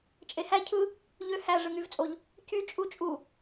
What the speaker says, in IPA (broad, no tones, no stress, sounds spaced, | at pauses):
t͡ʃʼ e h æ cʰ ɯ | ʎ ø h æ ʐ ɯ ŋ y v t͡sʼ o ʎ | c y t͡ʃʼ u t͡ʃʼ u